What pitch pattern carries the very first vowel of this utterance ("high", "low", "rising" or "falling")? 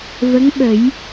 rising